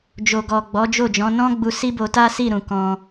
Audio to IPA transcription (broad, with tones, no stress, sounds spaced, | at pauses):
d͡ʒ o˨ ɡ ɔ˨ ɡ͡b ɔ˨˦ d͡ʒ o˦˨ d͡ʒ ɔ̃˨˦ n ɔ̃˦ ɡ͡b u˧ s i˦ b o˧ t a˦ s i˦˨ ɾ ũ˨ k ɔ̃˧